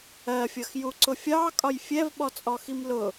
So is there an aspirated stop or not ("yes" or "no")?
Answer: no